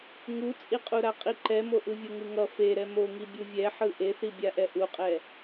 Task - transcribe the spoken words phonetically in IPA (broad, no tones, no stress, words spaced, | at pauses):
ŋut͡sʼiqʼuɾa qʼiǃɛmo ʔɯvʲoŋɯŋʌ feɾɛ moŋi bʲuvʲɛħɯ ʔeθibʲaʔɛ ʔuqʼɛ